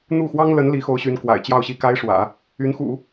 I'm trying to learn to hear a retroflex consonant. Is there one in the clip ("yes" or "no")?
yes